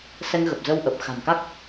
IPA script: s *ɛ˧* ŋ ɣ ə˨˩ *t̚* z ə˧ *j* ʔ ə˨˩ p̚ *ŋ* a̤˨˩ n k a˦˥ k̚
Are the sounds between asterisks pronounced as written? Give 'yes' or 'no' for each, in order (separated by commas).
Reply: yes, no, no, no